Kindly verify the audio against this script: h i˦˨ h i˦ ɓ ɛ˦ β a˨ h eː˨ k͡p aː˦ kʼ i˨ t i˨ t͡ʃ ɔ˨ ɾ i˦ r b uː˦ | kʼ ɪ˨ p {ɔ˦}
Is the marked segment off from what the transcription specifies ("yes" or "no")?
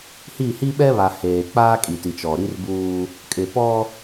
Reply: no